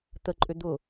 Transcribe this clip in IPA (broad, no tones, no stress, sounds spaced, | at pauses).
t̪ ə ǃʼ ʏ d̪ ʊ